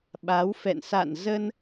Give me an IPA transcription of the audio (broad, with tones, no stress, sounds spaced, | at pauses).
ɓ a˨˦ w f ɛ̰˧˨ n s a̰˧˨ n z ə˧ n